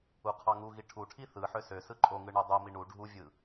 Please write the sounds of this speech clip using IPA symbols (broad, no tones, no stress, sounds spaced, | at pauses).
u qʰ ɑ ŋ u ɣ i ʈʰ u ʈʰ i θ ɯ ħ ø s ø s ɯ ǃʼ o ŋ ɯ ɳ o dˤ o m i ɳ u ɖʱ u vʲ ɯ